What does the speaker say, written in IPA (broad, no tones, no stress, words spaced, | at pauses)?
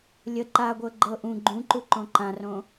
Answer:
lʲə ǃaɡʷɤ ɡ͡ǃɤ ʔũ ɡ͡ǃũǃuǃõ ǃãrõ